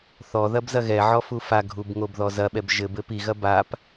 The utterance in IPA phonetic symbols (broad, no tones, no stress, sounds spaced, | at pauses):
θ ɔ ð ɐ b z ɐ ɣ ɛ ʕ ɔ f u f a ɡʱ u b ŋ o b ð ɔ z ɐ ɓ ɛ b ʒ ɘ b ɘ p i ɣ ɐ b a p